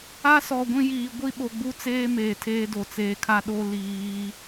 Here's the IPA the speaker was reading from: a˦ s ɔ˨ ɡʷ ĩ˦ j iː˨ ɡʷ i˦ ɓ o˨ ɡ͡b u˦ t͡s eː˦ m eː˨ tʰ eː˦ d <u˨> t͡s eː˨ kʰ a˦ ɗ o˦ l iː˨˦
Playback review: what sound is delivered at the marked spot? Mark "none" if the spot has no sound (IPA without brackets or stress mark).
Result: o˨